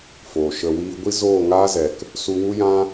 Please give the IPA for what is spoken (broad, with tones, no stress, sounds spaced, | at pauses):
f oː˨ ʃ ə˧ w iː˦ ɡʷ i˦ z oː˦˨ ŋ aː˦ z ɛ˨ k | s u˧ w u˦ j ã˦